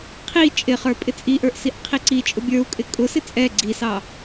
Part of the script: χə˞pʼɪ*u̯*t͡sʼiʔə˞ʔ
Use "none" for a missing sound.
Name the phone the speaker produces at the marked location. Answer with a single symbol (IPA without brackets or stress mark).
none